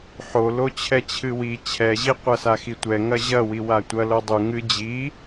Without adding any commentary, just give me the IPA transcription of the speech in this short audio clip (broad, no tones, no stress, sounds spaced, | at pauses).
ħ o l o t͡ɕʰ ɛ t͡ɕʰ ɨ w i t͡ɕʰ ɛ ʑ i qʷ ɐ s a x i tʷ ɛ ŋ ɐ ʑ ɐ w i w a tʷ ɐ l o dˤ u ŋ ɨ d͡ʑ i